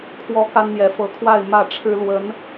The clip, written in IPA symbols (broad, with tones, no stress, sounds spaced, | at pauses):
kʰ w ɔ˥ k a˥ n n̪ j ɛ˧˥ f ɤ˧˥ kʰ w a˥˧ ɪ̯ m ä˥˩ ʈ͡ʂʰ ɻ̩˥ l w ə˧˥ n